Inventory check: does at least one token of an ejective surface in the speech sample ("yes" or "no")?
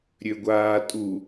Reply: yes